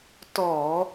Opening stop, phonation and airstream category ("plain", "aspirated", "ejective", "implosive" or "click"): plain